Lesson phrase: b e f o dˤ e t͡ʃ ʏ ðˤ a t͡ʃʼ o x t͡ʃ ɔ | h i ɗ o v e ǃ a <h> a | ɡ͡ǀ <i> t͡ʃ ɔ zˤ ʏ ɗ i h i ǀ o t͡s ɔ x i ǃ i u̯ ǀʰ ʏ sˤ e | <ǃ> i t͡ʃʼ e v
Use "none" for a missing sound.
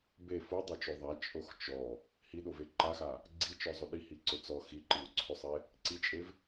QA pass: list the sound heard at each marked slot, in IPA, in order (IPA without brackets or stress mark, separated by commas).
x, i, ǀ